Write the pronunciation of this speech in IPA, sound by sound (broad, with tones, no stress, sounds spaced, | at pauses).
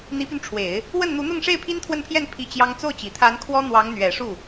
n̪ i˧˥ p y˧ n ʈ͡ʂʰ w e˨˩˦ ɪ̯ | w ə˥˩ n n̪ u˧˥ n̪ ʊ˥˧ ŋ ʂ e˥˩ ɪ̯ pʰ i˥ n t̪ʰ w ə˥˧ n pʰ j ɛ˥˧ n pʰ i˥˩ t͡ɕ j ɑ˥ ŋ t͡s o˥˩ ʊ̯ t͡ɕ i˨˩ t̪ʰ a˧˥ n kʰ w ɔ˥ n̪ w ɑ˧˥ ŋ n̪ ɥ ɛ˨˩ ʂ u˥˩